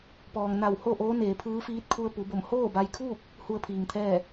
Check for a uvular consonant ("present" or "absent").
absent